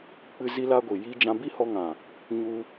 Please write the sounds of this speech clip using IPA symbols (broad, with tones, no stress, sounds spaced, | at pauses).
k͡p ɨ˧ z i˦ l a˦ ɡʷ i˨ j i˦ d͡ʒ ã˦ b i˦ h ɔ˧ ŋ ã˨ | ɲ u˧